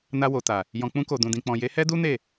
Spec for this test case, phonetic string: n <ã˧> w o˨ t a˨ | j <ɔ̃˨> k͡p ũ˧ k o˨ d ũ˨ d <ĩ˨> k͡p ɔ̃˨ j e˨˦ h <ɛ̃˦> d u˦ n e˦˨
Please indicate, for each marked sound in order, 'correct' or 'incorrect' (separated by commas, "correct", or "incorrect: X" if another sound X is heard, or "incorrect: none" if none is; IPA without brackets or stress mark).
incorrect: a˧, correct, correct, incorrect: ɛ˦